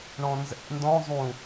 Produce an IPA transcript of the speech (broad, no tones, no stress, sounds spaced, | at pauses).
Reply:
ɳ ɔ̃ n z ɛ̰ n d ɔ̃ zˤ ũ